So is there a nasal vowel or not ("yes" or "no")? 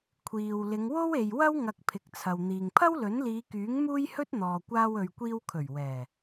no